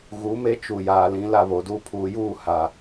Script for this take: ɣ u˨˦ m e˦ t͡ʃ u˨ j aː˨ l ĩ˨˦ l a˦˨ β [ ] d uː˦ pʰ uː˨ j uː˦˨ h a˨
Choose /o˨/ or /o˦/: o˨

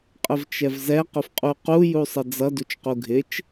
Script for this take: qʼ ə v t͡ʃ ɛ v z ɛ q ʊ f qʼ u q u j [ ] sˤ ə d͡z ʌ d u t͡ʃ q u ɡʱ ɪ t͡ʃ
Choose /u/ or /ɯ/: u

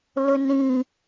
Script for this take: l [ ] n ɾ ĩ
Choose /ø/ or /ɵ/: ɵ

